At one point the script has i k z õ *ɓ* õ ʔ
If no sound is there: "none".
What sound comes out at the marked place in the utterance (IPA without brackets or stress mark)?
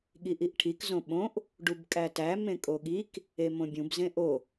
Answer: ɓ